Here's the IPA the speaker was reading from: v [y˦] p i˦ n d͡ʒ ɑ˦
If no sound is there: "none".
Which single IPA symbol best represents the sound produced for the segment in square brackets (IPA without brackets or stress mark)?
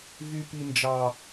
y˦